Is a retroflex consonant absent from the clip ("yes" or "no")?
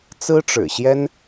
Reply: no